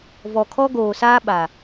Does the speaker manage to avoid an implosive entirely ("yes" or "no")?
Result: no